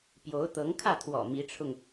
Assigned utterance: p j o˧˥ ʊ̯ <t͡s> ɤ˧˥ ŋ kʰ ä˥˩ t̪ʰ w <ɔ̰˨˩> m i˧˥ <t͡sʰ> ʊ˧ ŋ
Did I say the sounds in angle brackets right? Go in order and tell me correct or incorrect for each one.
incorrect, correct, incorrect

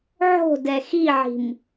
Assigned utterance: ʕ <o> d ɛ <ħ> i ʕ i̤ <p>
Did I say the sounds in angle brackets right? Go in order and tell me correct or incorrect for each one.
incorrect, incorrect, incorrect

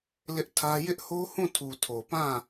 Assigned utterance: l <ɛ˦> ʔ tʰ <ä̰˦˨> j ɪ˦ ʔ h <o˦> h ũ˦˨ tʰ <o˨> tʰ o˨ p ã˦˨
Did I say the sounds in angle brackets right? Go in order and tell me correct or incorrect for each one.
incorrect, incorrect, correct, incorrect

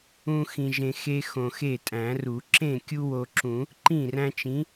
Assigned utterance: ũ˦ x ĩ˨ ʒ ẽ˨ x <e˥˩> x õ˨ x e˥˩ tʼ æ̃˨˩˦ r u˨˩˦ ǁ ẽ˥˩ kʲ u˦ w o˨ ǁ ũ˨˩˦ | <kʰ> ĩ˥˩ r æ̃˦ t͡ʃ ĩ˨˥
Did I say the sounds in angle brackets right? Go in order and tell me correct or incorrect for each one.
incorrect, incorrect

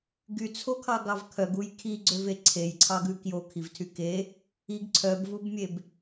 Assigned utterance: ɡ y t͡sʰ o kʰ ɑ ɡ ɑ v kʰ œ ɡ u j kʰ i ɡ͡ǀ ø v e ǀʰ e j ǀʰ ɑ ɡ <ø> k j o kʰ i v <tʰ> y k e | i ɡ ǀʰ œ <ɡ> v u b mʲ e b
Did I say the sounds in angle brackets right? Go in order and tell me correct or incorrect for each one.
incorrect, correct, incorrect

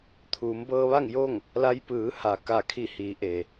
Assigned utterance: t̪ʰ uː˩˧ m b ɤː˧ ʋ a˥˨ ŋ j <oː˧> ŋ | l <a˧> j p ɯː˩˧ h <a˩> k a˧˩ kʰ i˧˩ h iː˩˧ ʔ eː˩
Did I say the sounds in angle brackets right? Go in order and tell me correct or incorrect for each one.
incorrect, correct, correct

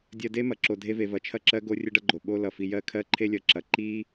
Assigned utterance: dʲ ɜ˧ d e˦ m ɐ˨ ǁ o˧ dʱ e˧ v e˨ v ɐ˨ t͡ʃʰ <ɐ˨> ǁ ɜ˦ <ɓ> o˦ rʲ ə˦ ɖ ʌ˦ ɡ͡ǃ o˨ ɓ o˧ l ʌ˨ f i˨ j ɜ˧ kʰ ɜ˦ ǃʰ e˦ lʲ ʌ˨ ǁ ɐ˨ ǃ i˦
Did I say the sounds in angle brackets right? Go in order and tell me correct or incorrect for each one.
incorrect, incorrect

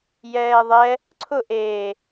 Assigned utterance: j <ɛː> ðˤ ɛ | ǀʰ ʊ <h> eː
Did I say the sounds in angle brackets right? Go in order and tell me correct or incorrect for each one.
correct, incorrect

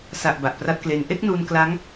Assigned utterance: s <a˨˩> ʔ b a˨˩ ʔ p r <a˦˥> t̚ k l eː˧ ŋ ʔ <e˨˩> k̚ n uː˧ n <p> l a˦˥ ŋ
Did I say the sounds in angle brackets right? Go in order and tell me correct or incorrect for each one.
correct, correct, incorrect, incorrect

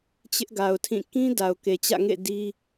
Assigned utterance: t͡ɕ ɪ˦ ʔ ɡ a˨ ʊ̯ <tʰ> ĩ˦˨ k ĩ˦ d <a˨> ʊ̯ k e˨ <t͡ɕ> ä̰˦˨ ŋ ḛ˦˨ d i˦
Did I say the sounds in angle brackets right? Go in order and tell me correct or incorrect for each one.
correct, correct, correct

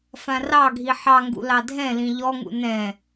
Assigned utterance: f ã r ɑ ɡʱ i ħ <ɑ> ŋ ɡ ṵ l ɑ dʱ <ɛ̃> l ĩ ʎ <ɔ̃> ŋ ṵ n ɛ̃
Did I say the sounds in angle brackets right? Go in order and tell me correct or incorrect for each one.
correct, correct, incorrect

